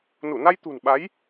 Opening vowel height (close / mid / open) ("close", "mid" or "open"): close